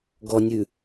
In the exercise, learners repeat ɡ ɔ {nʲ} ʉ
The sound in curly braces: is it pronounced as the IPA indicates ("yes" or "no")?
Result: yes